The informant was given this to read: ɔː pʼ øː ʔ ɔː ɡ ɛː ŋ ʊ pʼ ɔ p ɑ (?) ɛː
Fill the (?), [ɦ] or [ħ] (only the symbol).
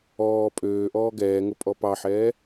ħ